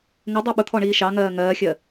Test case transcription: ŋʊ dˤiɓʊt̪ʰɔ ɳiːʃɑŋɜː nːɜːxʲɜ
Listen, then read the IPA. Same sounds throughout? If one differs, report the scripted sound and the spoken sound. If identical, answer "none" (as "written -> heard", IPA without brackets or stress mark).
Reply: nː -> ŋ